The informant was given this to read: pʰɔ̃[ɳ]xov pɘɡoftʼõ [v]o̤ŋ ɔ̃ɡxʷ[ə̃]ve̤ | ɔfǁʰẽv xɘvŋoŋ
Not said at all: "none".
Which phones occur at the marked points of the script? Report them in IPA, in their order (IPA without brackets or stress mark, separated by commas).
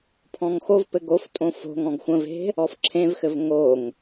ŋ, f, ə̃